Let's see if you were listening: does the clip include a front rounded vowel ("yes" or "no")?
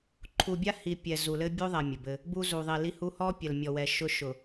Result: no